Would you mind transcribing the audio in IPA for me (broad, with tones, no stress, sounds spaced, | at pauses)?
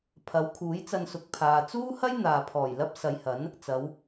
pʰ ɐ˨˥ w kʰ uː˨˥ j t͡s ɐ˧ n s ʊ˨ k̚ pʰ aː˨ t͡s uː˥ h ɐ˥ j n̪ aː˨ pʰ ɔː˨˩ j l ɐ˥ p̚ s ɐ˨˧ j h ɐ˨˥ n | t͡s ɐ˨˧ w